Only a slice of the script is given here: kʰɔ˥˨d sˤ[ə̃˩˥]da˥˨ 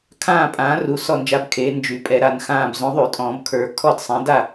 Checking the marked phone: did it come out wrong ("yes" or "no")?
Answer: yes